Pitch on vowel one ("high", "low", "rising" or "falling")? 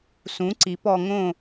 rising